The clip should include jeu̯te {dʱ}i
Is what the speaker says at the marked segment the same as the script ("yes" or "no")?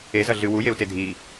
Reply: yes